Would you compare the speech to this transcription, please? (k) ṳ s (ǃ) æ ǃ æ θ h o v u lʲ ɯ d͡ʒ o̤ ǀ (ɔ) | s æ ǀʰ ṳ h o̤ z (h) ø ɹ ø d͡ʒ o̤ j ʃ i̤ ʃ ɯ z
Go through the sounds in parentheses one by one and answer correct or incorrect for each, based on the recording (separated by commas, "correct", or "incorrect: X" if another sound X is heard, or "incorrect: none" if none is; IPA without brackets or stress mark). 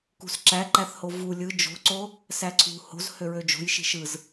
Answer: correct, incorrect: ǁ, incorrect: o, correct